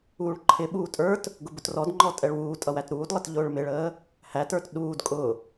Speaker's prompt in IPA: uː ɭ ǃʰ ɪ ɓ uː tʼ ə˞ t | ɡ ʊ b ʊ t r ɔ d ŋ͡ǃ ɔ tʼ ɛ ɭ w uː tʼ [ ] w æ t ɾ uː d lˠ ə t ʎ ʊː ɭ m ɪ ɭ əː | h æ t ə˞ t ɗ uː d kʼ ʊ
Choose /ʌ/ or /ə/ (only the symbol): ʌ